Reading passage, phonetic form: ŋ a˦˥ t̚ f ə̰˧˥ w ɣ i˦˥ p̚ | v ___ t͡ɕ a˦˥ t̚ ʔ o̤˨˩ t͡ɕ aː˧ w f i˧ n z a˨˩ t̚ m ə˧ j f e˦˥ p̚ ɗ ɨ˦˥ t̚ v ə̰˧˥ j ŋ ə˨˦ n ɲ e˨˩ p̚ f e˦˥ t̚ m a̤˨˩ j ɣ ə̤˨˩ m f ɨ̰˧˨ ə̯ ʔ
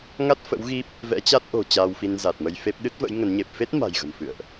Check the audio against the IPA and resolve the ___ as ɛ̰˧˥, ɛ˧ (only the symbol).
ɛ̰˧˥